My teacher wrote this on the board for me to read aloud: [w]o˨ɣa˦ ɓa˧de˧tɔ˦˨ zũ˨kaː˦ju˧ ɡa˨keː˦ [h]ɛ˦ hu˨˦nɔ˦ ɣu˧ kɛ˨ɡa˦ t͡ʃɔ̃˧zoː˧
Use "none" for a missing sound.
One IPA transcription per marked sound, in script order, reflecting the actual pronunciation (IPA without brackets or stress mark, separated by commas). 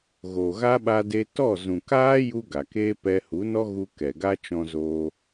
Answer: ɣ, p